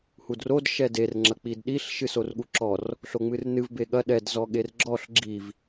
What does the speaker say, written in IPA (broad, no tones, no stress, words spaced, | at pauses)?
hudrod ʃɛder ŋ͡ǁɐk͡pidɗiɬ ʃɨsorɠuǁɔr | ɬoŋ͡mɨrnɨv beɠɐ ɗɛd zɔɠerɡ͡ǁɔɬ ɡ͡ǁiv